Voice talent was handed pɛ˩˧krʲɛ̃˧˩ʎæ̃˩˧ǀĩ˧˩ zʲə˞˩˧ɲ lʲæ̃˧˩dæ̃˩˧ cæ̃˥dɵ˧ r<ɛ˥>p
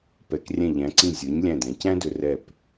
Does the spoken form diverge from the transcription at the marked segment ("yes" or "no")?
yes